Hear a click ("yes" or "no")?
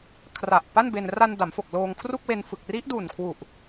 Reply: no